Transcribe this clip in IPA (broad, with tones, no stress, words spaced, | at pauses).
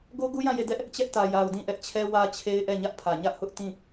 ɡo˦ɡu˦jã˦˨ je˦˨ dɛ˦ʔ | t͡ɕɛ˦ʔtä˨ ja˨ʊ̯dĩ˦˨ʔɛ˦ʔt͡ɕʰɛ˦ wä˦t͡ɕʰe˦ɪ̯ʔɛ˦˨ ɲä˦ʔpʰä˨ ɲä˦ʔhʊ˦ʔtĩ˦˨